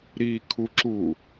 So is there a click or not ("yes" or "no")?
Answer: yes